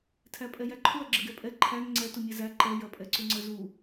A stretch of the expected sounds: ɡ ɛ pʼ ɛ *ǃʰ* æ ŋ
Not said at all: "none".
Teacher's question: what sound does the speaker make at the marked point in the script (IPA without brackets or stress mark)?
ǃʰ